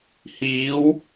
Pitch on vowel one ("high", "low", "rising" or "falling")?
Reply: rising